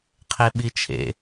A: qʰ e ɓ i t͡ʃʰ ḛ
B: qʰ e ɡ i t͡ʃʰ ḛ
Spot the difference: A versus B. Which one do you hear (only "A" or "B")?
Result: A